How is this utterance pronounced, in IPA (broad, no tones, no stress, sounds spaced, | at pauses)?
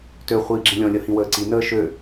t ø χʷ iː ɡ͡ǁ ĩ lʲ ɔ̃ lʲ ʌ h ĩ w əː ǀ i n əː ʃ ø